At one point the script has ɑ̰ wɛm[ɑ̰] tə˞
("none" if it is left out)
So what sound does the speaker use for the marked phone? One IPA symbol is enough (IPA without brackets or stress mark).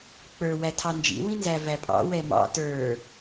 ɑ̰